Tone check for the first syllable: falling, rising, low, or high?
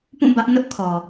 falling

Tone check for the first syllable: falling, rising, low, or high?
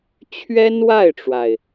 high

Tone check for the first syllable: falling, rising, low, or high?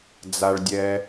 low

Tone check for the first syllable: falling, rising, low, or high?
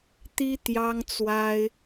high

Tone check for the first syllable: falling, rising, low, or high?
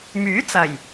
rising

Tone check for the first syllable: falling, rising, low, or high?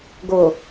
low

